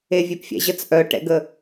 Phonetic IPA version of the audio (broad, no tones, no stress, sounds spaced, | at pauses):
e vʲ e p fʲ ɛ̰ ʑ ə t͡s ʔ œ ʈ ɛ̰ ɡ ə